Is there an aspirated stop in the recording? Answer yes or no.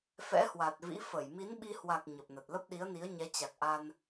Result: no